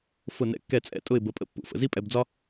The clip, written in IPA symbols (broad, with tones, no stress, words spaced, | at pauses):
fʊ˥˩nɛ̰˥˩kːɛ˥˩t͡sʼɛ̰˥˩ tʼʊ˥˩ɪ̯bə˩˥pʼə̰˥pːṵ˩ fə̰˩zi˥pʼɛ˧bd͡zɒ˥